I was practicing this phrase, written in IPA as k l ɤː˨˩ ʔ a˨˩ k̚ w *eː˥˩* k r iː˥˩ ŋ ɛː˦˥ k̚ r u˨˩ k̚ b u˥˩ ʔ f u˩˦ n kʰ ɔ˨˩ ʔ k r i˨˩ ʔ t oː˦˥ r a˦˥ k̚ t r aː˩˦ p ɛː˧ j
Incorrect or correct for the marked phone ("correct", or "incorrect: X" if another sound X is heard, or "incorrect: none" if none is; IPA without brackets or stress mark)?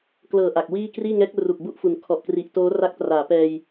incorrect: iː˥˩